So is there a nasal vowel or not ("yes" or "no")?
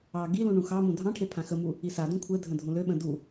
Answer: yes